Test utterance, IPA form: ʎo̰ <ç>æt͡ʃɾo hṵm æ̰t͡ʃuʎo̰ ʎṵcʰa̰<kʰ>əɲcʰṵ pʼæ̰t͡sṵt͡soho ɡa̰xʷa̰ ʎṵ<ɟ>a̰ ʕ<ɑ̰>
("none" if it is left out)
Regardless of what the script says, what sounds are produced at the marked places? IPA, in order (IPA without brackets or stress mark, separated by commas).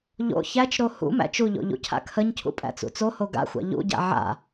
ç, kʰ, ɟ, a̰